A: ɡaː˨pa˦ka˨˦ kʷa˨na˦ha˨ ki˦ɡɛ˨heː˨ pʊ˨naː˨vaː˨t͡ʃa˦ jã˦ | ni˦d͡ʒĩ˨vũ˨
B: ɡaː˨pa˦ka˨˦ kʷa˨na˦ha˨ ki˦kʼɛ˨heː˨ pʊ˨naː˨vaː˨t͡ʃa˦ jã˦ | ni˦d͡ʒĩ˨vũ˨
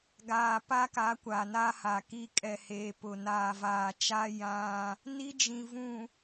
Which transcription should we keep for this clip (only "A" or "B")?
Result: B